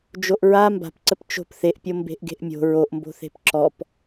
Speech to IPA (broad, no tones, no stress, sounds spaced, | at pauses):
d͡ʒ o ʔ ɹ a m b a̤ p ǀ ə p t͡ʃ o̤ p θ e ʔ pʲ o m b e̤ ʔ ɡ e̤ ʔ mʲ o̤ ɹ o ʔ m b o̤ θ e̤ p ǁ ɔ p